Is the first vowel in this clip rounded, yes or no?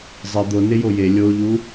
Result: no